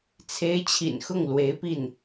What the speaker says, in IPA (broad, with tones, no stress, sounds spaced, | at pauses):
t͡sʰ e˧˥ ɪ̯ t͡ɕʰ ḭ˨˩ n x ʊ˥˩ ŋ l w e˧˥ ɪ̯ p i˥˩ n